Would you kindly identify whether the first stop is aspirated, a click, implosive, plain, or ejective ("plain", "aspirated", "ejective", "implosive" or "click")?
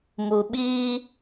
implosive